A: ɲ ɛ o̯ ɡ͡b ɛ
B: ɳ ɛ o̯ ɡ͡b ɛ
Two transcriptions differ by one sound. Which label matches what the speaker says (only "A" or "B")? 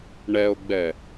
B